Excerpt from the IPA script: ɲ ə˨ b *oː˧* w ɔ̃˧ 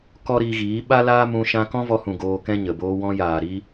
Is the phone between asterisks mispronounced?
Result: yes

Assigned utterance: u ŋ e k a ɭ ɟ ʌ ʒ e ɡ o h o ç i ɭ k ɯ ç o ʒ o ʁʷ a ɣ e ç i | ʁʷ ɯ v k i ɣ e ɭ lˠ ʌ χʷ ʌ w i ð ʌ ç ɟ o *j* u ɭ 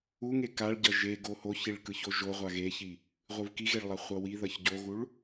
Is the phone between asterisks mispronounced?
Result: yes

